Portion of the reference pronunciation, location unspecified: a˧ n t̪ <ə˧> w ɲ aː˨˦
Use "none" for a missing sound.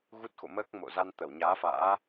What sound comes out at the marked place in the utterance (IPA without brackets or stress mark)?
ə˧˩